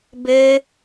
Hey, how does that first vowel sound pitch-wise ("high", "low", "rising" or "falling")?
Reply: high